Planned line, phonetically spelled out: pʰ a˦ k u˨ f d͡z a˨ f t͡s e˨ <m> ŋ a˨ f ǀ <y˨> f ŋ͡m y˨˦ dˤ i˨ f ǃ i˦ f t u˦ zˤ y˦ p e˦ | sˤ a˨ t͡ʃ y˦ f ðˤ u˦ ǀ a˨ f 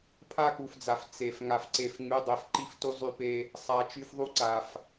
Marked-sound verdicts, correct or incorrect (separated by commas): incorrect, incorrect